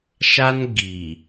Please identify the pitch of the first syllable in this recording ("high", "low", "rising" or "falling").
high